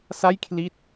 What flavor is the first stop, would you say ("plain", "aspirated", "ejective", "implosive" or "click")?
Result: aspirated